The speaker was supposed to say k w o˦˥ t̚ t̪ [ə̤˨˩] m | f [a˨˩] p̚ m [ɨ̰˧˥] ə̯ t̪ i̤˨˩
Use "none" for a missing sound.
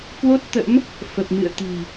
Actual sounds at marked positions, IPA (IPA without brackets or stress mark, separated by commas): ə̰˧˥, ə˨˩, ɨ̰˧˨